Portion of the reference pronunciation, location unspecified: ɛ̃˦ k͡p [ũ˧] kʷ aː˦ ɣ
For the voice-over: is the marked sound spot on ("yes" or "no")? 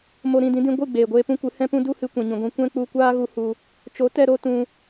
no